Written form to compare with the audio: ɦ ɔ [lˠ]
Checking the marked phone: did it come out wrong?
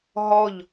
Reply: yes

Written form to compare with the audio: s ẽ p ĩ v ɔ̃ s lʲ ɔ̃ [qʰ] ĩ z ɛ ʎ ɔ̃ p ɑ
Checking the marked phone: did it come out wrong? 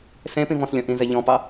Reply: yes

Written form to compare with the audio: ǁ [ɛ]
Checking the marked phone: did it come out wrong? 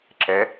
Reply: no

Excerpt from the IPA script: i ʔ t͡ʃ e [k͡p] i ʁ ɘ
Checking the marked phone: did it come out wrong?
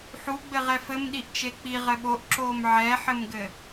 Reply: no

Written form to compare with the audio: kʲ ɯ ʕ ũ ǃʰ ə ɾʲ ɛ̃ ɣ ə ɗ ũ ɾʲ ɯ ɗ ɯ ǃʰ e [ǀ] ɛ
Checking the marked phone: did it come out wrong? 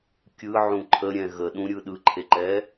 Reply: yes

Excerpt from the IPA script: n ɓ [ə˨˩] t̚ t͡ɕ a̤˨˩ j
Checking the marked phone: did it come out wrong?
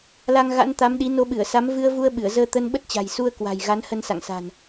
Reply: yes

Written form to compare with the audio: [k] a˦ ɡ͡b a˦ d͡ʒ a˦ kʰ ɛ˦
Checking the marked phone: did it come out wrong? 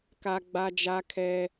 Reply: no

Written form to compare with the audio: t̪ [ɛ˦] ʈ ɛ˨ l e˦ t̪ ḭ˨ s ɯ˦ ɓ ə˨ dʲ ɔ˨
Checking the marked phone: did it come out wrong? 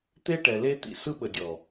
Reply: yes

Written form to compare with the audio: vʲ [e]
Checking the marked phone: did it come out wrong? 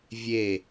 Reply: no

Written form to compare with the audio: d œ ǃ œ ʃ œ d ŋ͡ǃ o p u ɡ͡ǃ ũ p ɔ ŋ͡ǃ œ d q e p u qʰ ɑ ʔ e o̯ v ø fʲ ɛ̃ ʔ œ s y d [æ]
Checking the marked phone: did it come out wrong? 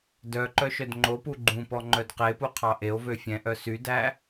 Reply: no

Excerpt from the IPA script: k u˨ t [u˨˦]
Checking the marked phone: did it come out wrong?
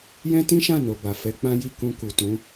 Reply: yes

